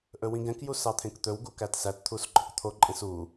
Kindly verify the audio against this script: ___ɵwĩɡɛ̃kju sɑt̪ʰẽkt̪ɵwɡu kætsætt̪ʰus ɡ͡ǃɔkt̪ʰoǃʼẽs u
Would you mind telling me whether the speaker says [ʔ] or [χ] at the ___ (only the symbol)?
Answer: ʔ